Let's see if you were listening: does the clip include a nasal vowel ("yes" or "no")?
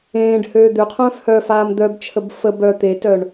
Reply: yes